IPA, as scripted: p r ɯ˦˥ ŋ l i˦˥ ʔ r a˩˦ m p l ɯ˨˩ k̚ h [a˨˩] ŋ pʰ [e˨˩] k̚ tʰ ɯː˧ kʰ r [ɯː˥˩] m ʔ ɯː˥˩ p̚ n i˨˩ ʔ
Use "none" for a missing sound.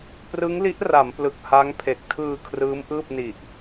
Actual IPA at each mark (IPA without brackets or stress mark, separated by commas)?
a˦˥, e˨˩, ɯː˦˥